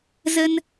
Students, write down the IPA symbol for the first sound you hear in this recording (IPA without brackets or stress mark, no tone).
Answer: z